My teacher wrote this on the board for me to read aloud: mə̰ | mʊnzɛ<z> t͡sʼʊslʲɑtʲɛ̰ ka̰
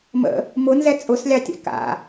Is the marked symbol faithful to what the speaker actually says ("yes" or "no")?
no